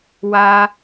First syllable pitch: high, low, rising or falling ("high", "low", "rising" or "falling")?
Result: high